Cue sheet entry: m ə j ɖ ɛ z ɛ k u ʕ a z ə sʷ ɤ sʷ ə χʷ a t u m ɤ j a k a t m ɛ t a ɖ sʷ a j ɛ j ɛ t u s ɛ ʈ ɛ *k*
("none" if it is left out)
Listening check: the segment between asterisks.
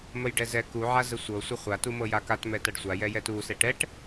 ʈ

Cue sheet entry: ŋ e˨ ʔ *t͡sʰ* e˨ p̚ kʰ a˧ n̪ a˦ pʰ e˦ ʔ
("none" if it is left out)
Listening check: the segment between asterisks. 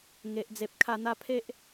d͡z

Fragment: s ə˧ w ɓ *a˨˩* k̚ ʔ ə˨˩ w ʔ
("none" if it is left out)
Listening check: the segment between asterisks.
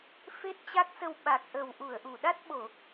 a˨˩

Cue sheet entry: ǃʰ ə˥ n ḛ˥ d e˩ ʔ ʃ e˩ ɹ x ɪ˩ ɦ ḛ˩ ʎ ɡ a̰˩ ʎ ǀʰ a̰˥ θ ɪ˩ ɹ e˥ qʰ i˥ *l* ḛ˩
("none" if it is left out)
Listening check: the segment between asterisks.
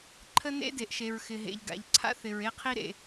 ɾ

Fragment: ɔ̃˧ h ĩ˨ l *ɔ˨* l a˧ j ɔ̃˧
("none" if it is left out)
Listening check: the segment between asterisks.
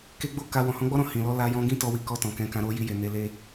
ɔ˧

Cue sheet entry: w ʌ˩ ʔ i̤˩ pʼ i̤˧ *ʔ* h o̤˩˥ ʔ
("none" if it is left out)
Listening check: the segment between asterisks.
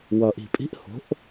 ʔ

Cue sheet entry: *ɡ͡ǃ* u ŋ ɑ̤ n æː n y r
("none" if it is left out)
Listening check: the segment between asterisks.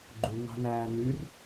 ɡ͡ǃ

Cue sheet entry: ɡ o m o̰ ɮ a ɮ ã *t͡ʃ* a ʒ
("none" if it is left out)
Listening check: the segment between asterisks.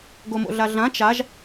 t͡ʃ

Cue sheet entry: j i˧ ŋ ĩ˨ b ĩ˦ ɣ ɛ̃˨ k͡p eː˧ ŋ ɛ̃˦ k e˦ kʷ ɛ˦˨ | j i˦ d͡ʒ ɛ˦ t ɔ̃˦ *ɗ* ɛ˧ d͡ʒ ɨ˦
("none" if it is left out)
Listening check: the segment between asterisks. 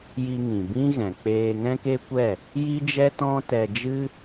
t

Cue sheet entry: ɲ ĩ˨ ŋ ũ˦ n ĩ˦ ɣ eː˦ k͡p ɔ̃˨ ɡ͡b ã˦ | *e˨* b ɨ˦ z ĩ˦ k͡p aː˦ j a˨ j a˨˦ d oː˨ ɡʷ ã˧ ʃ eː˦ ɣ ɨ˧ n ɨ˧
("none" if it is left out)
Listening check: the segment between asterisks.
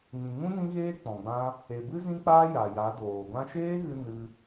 e˨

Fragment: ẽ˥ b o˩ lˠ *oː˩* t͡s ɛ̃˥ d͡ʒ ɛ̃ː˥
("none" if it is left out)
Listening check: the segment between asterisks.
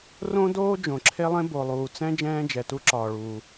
uː˩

